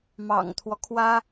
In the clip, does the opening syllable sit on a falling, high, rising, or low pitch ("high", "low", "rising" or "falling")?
low